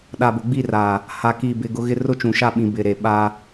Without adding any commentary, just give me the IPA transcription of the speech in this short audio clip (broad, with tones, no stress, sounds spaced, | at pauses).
ɗ a˨ b ʊ˨ ɡ͡b i˦˨ r aː˨ | h a˨ k iː˨ b ɪ˨ ɡ ʊ˦ ɣ ɪ˦ r ʊ˦ t͡ʃ ũ˨ ʃ a˦ ɓ ĩ˨ b ɪ˨ ɾ e˨ ɓ a˦